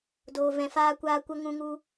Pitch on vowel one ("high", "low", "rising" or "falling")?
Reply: low